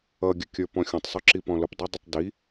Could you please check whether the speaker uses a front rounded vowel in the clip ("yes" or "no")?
no